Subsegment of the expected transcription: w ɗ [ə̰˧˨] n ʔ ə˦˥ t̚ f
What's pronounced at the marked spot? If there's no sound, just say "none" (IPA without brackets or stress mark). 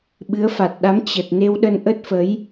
ə˧